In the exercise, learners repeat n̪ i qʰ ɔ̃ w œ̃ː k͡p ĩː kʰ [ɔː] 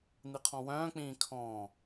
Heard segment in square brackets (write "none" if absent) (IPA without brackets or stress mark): ɔ̃ː